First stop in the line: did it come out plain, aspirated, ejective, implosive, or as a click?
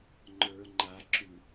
click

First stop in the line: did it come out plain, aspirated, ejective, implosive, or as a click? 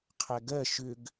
aspirated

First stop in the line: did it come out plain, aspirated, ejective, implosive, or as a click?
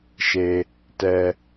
plain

